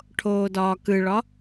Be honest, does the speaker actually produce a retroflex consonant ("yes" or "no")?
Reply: yes